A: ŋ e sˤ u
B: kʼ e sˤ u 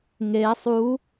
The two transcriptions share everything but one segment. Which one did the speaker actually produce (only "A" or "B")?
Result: A